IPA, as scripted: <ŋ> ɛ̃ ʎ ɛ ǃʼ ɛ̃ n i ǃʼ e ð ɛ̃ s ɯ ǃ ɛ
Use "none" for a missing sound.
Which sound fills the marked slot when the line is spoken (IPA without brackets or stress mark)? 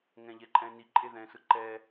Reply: ŋ